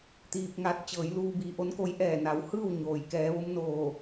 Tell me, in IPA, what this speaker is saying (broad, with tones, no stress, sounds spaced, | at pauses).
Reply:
t̪ iː˧ p̚ ŋ a˧˥ t̚ t͡ɕ ɤː˩˧ j l uː˧ b iː˩˧ ʔ o˧˥ n k o˧˥ j ʔ ɛː˧˩ n a˩˧ w h ɯː˥˨ w ɲ oː˩ j k ɛː˩˧ ʋ o˧˥ m n oː˧˩